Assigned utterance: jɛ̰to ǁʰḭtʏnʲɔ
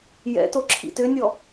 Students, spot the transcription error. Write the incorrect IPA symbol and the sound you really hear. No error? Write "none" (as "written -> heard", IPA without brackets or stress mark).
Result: none